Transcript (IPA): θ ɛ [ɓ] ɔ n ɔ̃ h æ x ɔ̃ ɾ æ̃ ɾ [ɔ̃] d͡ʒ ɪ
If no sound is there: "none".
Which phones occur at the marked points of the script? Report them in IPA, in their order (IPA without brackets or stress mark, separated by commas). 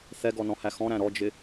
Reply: ɡ, ɔ